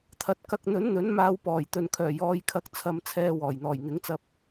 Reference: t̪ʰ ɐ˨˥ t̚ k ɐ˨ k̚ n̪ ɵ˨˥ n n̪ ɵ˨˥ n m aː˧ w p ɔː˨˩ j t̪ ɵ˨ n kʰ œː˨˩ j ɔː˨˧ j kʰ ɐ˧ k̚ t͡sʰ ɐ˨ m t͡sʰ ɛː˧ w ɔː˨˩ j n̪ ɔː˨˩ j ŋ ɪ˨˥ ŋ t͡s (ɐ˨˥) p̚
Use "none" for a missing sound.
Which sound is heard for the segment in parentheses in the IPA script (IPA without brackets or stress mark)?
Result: ɐ˧